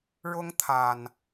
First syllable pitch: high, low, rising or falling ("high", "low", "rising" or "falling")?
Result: high